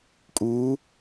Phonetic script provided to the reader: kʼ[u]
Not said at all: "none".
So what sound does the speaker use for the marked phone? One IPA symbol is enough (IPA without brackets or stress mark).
u